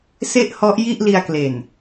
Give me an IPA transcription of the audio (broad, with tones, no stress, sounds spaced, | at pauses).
s e˥˩ ʔ h ɔ˦˥ ʔ j i˥˩ ʔ l i˧ a̯ k l e˨˩ n